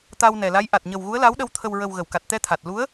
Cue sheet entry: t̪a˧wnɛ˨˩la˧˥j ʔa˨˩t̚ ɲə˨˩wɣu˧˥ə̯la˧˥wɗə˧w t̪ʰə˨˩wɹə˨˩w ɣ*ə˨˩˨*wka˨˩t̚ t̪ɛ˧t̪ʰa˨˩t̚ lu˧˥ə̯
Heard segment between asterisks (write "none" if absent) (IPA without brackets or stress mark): ə˨˩˨